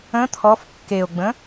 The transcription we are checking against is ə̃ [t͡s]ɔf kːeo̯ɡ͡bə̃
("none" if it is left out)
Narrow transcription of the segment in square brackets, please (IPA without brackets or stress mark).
t̪ʰ